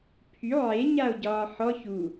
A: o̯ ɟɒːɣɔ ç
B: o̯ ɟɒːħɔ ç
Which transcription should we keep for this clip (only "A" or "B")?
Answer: B